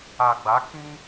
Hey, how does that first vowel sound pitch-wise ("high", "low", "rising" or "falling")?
low